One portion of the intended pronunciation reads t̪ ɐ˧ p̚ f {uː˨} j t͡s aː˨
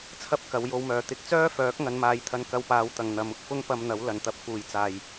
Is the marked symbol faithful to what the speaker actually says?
yes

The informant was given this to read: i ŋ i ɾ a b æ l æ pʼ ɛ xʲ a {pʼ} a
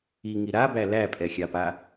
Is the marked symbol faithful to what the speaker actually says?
no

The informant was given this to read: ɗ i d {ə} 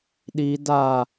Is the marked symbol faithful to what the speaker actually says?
no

